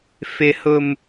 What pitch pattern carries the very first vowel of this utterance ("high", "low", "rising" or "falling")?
low